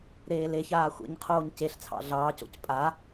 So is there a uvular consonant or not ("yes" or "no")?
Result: yes